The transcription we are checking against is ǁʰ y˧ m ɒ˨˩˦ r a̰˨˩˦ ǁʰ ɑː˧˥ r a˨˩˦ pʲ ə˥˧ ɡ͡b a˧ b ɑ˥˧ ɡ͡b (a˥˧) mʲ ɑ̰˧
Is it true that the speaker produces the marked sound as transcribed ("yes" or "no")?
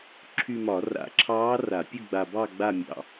yes